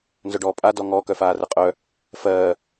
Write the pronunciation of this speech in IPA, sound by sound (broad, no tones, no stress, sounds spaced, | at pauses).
n z œ ɖ ɔː pʼ a d ɔ ŋ ɔ k œ f aː r ə qʼ œ | f ɜː